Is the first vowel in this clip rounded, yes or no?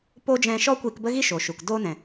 yes